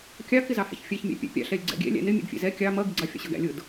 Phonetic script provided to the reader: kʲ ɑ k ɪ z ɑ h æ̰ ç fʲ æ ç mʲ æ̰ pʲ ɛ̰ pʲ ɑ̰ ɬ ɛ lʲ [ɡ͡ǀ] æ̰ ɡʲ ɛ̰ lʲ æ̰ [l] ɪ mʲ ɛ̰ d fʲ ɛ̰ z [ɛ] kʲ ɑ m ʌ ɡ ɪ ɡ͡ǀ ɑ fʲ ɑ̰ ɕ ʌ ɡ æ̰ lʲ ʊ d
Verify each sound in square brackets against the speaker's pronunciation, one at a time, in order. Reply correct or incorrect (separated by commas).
correct, incorrect, correct